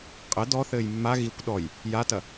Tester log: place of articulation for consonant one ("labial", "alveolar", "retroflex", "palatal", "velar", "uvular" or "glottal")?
uvular